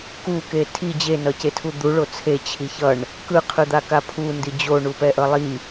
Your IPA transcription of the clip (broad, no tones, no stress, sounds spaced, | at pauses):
k u k e tʰ i d͡ʑ e n ʌ c e tʰ u d̪ u ɭ o t͡sʰ e t͡ɕʰ i ç ʌ ɳ | k ɯ qʰ ɯ d̪ a k a pʰ u n d i d͡ʑ o ɳ u p ɛ ʔ ʌ lˠ i